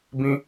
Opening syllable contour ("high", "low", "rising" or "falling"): high